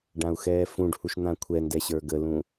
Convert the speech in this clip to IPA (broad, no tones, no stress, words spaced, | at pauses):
ɖãu̯xɛːfũɖhuʃ n̪ãkʷʰɛndɛ ɕə˞ɡəlũ